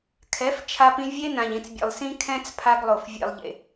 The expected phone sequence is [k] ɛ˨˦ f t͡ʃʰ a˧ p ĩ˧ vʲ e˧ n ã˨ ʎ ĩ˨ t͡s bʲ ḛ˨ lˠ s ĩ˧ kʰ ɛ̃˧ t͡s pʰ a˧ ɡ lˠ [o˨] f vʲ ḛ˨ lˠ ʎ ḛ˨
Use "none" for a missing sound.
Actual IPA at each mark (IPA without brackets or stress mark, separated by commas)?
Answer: kʰ, o˨